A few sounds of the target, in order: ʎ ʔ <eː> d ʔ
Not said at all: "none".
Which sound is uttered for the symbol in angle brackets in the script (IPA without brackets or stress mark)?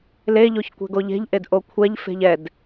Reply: e